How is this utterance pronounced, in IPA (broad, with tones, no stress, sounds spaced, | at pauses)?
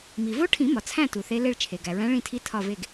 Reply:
m i˩ v o˧˥ ʈʰ ĩ˨˩˦ m ɒ˩ t͡sʰ æ̃˦˨ t u˩ θ e˧˥ l e˦˨ ɭ t͡ʃʰ e˩ ɡ æ˩ ɹ æ̃˧˥ ɭ ĩ˦˨ tʰ i˧˥ tʰ ɒ˦˨ v e˦˨ ɡ